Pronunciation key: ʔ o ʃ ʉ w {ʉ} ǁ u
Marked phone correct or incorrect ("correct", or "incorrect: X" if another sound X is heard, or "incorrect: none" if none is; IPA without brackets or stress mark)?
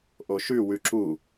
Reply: correct